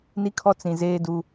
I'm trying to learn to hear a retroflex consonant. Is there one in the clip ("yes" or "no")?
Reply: no